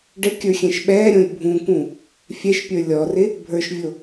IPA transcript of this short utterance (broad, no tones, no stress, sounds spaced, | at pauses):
ɖ ɘ kʲ ə˞ xʲ ɛ̃ ʃ ɓ ɛː ɾʲ õ lʲ bʱ ũ k ũ | fʲ ɛ ʃ pʲ ə˞ lʲ ɔ r ɪ | bʱ ə˞ ʃ vʲ o